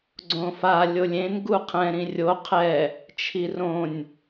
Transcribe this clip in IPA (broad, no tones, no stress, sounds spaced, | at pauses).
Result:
ɡ͡ǀ õ f a lʲ o lʲ ẽ n ɡ u qʰ ɛ̃ ɾ ĩ rʲ o qʰ ɛ | t͡ʃʰ i r õ nʲ